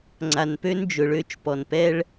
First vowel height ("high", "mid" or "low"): low